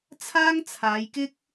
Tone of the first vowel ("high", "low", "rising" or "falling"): high